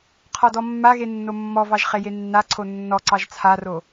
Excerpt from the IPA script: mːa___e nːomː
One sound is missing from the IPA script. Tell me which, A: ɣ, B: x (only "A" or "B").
A